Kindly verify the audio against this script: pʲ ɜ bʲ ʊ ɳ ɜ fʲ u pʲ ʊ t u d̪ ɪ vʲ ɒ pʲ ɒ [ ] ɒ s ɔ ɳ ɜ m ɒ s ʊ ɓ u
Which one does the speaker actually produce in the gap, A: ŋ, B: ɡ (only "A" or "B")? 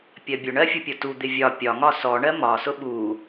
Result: A